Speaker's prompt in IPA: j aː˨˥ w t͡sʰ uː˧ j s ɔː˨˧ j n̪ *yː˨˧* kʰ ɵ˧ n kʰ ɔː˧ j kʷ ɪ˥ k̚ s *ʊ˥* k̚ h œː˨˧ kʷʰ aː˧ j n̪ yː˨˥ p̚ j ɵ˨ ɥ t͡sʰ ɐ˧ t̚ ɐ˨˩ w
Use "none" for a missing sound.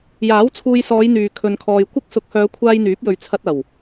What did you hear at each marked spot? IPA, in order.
yː˨, ʊ˨˥

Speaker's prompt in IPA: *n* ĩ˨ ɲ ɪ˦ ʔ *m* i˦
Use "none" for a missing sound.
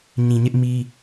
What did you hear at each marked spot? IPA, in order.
ɲ, m

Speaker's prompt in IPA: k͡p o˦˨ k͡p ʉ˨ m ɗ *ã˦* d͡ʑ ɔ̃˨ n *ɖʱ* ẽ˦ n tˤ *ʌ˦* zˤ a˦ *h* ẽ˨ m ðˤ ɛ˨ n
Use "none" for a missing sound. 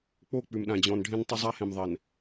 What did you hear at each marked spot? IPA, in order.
ã˨, ɖʱ, ʌ˦, h

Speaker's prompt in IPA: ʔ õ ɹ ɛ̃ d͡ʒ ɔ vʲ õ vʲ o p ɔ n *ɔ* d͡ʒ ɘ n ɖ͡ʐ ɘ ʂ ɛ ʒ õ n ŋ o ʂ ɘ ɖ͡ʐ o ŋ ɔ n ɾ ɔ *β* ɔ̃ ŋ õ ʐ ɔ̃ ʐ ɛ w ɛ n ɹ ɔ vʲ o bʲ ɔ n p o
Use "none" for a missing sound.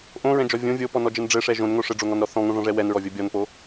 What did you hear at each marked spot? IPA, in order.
ɔ, θ

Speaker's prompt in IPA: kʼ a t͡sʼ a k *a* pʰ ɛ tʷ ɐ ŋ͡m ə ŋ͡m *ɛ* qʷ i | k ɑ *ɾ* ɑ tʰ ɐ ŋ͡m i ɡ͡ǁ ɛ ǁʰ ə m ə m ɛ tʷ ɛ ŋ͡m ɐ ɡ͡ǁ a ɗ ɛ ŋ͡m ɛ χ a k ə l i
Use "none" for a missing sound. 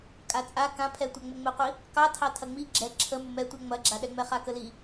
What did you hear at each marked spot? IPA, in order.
ã, ɘ, tʰ

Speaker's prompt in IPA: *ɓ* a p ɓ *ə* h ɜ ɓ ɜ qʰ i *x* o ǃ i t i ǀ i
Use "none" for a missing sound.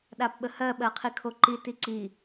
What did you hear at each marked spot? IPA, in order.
ɗ, ə, kʰ

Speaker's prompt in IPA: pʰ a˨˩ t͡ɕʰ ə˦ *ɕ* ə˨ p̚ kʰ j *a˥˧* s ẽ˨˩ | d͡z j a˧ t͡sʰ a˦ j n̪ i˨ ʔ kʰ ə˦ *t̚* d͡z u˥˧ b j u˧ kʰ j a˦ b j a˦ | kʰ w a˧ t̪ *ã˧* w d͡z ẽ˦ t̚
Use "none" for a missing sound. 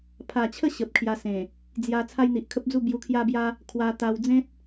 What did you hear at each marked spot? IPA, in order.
ɕ, a˧, p̚, a˧

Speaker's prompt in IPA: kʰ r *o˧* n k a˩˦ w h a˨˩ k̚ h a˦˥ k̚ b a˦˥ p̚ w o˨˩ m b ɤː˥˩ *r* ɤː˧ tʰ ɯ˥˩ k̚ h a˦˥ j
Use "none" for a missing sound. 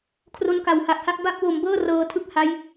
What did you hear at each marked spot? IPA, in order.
o˧, r

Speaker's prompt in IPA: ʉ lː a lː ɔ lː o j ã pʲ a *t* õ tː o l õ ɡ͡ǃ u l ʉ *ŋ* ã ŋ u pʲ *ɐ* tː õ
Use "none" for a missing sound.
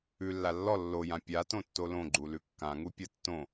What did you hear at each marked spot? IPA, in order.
t, kː, ɐ

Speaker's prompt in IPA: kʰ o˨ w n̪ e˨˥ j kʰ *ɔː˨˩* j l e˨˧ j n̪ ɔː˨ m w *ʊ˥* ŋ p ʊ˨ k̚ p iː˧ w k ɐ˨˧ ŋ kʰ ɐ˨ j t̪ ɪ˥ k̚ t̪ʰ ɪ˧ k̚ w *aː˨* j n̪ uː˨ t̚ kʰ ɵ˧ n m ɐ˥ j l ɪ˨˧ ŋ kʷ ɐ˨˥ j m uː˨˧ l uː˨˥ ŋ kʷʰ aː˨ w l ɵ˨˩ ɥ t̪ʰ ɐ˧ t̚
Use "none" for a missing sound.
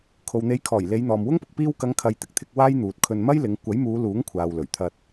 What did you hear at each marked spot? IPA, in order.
ɔː˨˩, ʊ˥, aː˥

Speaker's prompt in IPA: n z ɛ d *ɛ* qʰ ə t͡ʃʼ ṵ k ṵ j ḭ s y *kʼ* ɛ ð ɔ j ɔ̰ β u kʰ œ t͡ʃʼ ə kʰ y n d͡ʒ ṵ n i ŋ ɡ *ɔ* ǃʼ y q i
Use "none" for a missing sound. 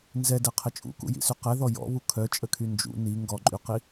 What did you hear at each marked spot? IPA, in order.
ɛ, q, ɔ

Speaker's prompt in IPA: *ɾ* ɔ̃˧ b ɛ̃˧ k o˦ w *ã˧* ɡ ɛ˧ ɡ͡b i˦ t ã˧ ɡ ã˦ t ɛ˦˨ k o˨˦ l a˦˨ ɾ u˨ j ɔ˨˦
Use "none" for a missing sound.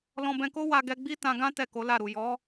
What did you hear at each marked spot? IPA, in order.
l, a˧

